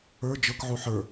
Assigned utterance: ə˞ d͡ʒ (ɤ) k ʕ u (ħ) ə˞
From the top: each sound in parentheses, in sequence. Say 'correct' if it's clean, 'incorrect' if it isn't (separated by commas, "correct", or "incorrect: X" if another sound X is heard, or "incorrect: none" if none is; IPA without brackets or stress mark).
correct, correct